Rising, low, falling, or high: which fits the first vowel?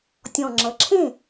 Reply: low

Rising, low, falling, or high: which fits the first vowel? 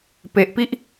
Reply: low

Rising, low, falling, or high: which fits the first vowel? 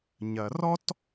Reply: low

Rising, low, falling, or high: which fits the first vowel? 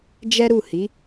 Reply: high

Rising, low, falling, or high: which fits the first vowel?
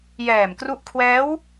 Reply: low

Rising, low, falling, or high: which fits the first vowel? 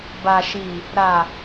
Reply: low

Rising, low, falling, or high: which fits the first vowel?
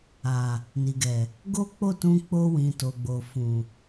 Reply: low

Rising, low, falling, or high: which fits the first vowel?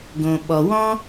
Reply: low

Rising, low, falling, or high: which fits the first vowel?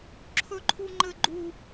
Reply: high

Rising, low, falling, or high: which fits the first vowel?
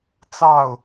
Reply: falling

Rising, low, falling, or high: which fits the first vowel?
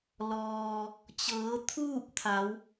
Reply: low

